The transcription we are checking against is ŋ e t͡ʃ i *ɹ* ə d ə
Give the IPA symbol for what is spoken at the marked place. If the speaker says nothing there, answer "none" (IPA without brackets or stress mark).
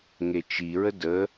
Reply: ɹ